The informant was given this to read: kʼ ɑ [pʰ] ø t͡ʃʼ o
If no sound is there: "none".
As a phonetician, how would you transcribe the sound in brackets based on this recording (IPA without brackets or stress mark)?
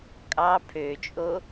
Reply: pʰ